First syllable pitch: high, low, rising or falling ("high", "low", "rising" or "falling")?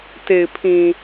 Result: low